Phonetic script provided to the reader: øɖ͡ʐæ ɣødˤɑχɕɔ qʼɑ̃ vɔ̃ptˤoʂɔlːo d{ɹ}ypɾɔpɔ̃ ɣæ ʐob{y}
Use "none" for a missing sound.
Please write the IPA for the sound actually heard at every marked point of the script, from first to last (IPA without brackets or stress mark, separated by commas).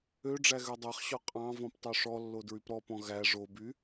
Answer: ɹ, y